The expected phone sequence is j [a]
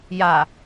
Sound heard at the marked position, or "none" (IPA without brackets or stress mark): a